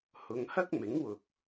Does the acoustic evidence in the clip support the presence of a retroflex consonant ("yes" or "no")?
no